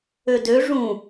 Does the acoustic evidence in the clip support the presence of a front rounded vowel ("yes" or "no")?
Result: yes